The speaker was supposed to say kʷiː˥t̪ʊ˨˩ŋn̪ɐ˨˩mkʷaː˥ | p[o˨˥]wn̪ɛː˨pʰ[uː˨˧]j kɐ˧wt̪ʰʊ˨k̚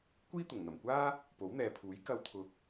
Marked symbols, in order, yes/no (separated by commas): yes, no